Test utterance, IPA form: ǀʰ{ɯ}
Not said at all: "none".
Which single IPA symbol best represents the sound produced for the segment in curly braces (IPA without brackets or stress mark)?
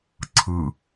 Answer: ɯ